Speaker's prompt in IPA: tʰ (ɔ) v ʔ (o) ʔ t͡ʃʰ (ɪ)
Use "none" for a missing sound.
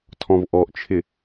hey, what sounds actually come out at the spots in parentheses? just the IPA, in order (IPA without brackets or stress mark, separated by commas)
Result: ɔ̃, ɔ, ɪ